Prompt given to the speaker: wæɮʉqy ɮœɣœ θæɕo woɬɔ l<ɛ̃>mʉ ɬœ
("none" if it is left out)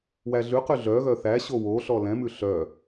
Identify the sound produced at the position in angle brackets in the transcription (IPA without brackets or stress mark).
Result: ɛ̃